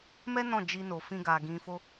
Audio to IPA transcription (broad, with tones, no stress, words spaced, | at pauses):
mɛ˦ nɔ̃˦˨ d͡ʒi˧no˨fĩ˧ɡa˨ ɡĩ˨ fo˧